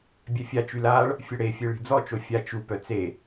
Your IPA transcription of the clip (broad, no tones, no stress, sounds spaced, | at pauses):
bʲ ɛ fʲ a t͡ʃ y l a ɭ | fʲ ə ɽ e fʲ e ɭ i̤ d͡z ɔ t͡ʃ o fʲ a t͡ʃ u p œ t͡s e